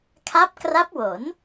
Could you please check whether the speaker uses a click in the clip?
no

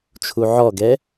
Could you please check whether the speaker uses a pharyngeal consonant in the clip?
yes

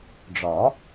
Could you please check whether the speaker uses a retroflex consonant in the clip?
yes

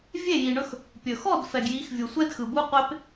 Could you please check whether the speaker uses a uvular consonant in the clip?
yes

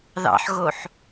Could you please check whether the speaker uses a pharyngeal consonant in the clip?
yes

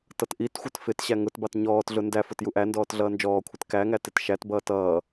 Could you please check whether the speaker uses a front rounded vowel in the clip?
no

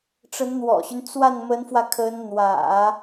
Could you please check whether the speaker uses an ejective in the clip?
no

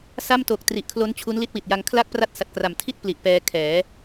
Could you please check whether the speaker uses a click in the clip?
no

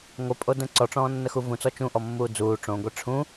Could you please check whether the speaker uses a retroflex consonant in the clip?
yes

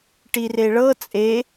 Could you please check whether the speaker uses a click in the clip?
no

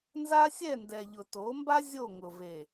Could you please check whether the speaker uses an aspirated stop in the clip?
no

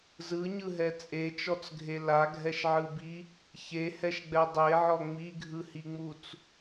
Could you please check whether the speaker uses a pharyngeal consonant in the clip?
yes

